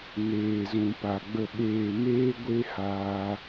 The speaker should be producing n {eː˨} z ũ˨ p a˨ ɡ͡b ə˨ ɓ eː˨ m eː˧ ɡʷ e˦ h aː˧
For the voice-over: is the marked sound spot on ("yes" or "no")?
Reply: yes